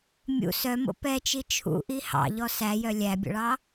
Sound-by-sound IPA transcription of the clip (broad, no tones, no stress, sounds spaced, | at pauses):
mʲ ṵ s œ m o̰ p ɛ t͡ʃ i t͡ʃʰ ṵ ʔ i h ɑ̰ ʎ ɔ s æ j œ lʲ æ bʲ ɔ̰ ɭ ɑ